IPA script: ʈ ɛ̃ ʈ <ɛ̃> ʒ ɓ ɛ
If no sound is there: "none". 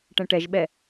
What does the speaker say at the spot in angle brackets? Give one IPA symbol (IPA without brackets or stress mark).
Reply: ɛ